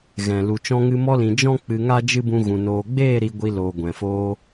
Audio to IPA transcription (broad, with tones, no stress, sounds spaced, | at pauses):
ɣ ɛ̃˨ l u˨ t͡ʃ ɔ̃˧ ŋ ɨ˧ m ɔ˧ l ĩ˨ d͡ʒ ɔ̃˦ k͡p ɨ˧ ŋ a˦ d͡ʒ ɨ˦ b ũ˧ ɣ ũ˨ n oː˨ ɡ͡b eː˦˨ ɾ i˧ ɡʷ i˧ l oː˨ ɡʷ ɛ̃˨ f oː˧